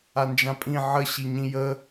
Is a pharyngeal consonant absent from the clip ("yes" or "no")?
no